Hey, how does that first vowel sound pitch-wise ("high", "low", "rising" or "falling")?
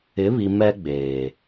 rising